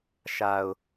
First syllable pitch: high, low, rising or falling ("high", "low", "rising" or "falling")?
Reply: low